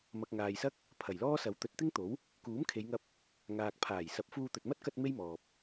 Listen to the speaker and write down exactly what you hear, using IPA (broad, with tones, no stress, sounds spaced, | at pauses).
m ɐ˨ k̚ ŋ aː˨ j s ɐ˥ k̚ | pʰ ɐ˨˩ j l ɔː˥ s ɐ˨˥ w t̪ ɵ˨˥ t̚ t̪ ɪ˥ ŋ t̪ o˨˥ w | k uː˨˥ m kʰ e˨˧ j ŋ ɐ˧ p̚ | ŋ aː˨ k̚ pʰ aː˨˩ j s ɐ˨˥ p̚ f uː˧ t̪ ɵ˨ t̚ m ɐ˥ t̚ k ɐ˧ t̚ m e˥ j m ɔː˨ p̚